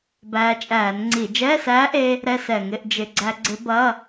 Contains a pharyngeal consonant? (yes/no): no